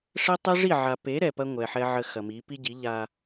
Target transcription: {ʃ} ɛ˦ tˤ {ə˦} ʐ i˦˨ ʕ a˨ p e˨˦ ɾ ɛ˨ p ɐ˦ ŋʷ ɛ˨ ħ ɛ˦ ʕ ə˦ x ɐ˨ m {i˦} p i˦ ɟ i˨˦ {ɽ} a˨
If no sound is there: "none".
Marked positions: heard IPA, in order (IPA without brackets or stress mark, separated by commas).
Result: ʂ, ɛ˦, i˨˦, ʎ